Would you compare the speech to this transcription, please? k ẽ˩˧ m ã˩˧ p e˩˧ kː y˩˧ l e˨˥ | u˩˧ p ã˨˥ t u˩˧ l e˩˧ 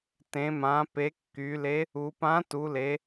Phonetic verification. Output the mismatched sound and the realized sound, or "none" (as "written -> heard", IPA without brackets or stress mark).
k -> t